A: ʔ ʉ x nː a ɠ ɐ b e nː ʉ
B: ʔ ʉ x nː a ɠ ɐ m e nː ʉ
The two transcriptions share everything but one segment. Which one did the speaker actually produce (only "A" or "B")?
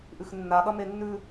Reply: B